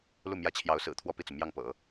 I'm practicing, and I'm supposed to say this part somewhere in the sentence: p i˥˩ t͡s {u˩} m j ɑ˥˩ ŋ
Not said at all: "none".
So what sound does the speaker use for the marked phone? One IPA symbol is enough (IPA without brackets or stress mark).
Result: u˩